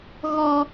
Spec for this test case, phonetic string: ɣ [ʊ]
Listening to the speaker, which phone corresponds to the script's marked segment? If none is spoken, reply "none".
ɔ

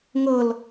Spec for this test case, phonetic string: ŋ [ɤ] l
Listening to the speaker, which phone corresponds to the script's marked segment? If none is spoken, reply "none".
ɤ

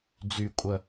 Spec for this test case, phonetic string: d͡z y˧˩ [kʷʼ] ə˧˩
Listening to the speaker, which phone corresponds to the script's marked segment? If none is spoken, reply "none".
kʷʼ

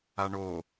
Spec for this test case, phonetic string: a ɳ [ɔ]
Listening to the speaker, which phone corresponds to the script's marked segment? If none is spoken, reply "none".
o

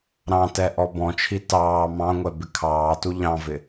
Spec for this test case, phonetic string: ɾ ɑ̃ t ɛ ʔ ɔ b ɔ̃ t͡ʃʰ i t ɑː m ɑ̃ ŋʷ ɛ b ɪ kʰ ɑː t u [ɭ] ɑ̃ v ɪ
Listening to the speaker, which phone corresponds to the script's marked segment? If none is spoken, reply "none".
ʎ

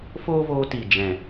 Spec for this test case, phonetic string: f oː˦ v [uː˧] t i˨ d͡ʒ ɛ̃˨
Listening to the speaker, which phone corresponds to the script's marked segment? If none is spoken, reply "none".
oː˧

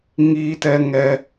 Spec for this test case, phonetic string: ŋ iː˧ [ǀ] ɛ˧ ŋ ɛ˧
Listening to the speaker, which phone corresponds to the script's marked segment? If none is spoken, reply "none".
t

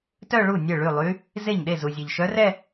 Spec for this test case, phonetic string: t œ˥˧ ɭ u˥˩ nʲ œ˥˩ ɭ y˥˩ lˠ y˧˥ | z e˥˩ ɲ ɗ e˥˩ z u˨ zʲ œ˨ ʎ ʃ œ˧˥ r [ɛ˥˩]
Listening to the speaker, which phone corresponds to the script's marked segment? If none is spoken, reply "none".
ɛ˥˧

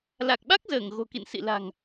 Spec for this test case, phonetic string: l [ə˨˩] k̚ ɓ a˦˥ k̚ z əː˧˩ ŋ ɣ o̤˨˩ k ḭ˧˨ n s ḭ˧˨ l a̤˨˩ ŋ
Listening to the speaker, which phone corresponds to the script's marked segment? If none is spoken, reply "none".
a˨˩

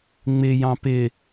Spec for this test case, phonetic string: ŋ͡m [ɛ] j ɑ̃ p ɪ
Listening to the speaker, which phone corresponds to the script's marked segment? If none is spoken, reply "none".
ɪ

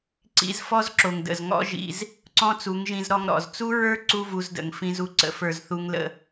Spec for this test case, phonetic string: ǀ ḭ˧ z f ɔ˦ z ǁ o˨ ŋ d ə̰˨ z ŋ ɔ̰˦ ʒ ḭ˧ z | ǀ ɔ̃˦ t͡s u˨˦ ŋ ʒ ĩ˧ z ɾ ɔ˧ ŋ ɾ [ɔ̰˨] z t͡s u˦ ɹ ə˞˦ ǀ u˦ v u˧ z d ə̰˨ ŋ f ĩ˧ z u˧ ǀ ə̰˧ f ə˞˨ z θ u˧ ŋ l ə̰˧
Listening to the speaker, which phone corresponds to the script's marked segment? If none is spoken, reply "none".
ɔ̰˨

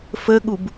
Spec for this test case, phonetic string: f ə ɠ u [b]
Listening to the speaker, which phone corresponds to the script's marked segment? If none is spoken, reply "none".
b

